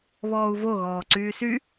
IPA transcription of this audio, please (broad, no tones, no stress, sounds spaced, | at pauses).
β ɔː u̯ v o ɣ ɔː ǀ yː s y